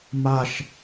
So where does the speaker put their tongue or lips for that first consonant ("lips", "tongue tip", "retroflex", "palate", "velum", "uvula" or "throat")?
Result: lips